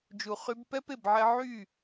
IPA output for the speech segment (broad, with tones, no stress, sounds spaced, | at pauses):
d͡ʒ u˨ χ y˧ b p ɛ˦ p e˦˨ b ʕ ɛ˧ ʕ y˦˨